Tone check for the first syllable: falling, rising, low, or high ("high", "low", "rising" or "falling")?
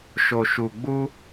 low